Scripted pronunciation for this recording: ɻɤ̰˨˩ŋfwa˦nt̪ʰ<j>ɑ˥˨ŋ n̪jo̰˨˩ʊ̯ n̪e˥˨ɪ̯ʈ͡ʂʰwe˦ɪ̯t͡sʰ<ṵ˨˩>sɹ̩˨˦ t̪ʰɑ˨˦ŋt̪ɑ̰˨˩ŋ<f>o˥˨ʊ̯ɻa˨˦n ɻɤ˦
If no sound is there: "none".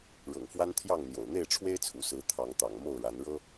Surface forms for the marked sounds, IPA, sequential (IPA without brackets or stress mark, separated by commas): j, ṵ˨˩, m